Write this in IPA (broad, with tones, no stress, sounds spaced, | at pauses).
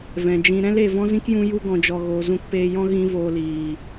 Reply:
v ɛ̃˨ d͡ʒ ĩ˧ ɾ ɛ̃˦ l e˨ v ɔ̃˦ z ĩ˦ k j ũ˧ j u˧ ɡ ɔ̃˨ d͡ʒ ɔ˨ ɣ oː˨ z ũ˧ k p eː˧ j ɔ̃˦ ɣ ĩ˦ v oː˧ l iː˨